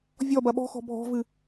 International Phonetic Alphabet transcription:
vʲ ɔ b ɐ ɓ ɔ̤ x ɔ̤ bʱ ɔ̤ v ɨ

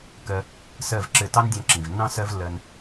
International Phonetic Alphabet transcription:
k ɜ˧ | s ɜ˦˨ v ǁ ɘ˦˨ t ɑ˦ n dʲ ɑ̃˧ ǁ ĩ˨ v nː ɑ̃˦ s ɜ˦ v lː ɜ˧ n

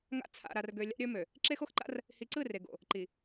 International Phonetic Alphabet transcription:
ŋ a̰˦ t͡sʰ a̰˨ ɾ a˨ r ɡ ø˨ lʲ a̰˦ ɾʲ ə˞˦ m ø˨ | ǁ e˦ x o˦ x ǃ a̰˦ r | h i˨ ǀ ɯ˦˨ r e˨ ɡ o̰˨ | ǃ i˨

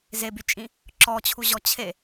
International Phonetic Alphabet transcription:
z e b y t͡ʃʼ ĩ | ǁ ɔ t͡ɕʰ u ʑ ɔ t͡ɕʰ e

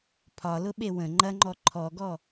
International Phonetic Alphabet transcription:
pʰ ɒ l ʊ ɓ e w ə̃ ŋ͡ǃ ɐ ŋ͡ǃ ɔ ǃʰ ɔ ɡ ɔ

